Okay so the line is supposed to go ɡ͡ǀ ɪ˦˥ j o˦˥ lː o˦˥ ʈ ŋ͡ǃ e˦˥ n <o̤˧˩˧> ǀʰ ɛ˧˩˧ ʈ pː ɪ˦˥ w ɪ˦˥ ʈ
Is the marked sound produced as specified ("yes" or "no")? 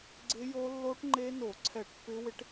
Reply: no